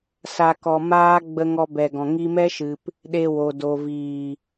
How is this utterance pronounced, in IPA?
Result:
s a˨ k ɔ˨ m aː˧ ɡ͡b ə˧ ŋ ɔ˧ b ɛ˨ ɡ ɔ̃˨ ŋ i˧ m ɛ˦ ʃ ɨ˨ p | ɗ e˧ w o˨ d o˨ v iː˨

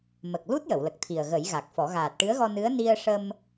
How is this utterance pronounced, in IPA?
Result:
m ə˨˩ k̚ l u˦˥ t̚ j ə˨˩˨ w l ə˨˩ k̚ t̪ʰ i˨˩ ə̯ ɣ ə˨˩˦ j ɣ a˨˩ k̚ f ɔ˨˩˦ ɣ aː˨˩ t̚ ʈ ɨ˧˥ ə̯ ɣ ɔ˧ n ɨ˧˥ ə̯ n i˧ ə̯ ʂ ə˧ m

